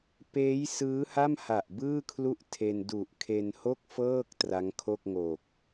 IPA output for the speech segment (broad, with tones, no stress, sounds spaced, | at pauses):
p eː˦˥ j s ɯː˦˥ h a˥˩ m h a˨˩ ʔ b ɯː˥˩ kʰ l u˥˩ ʔ tʰ e˧ n d u˨˩ ʔ kʰ e˧ n h o˥˩ k̚ f ɤː˥˩ k̚ t r a˦˥ ŋ kʰ o˥˩ k̚ ŋ o˨˩ k̚